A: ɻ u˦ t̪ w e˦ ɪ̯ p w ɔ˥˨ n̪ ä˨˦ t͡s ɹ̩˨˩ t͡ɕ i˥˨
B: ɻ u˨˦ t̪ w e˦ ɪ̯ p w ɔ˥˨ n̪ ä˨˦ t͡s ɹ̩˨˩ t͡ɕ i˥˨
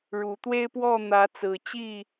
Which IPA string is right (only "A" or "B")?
B